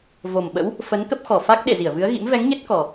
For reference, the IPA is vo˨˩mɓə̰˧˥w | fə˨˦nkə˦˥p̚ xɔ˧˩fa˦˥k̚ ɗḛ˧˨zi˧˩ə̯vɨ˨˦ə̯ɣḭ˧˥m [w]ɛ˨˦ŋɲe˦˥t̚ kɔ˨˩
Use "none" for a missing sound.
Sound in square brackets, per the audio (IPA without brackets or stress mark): v